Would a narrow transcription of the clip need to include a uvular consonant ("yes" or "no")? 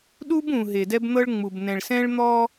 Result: no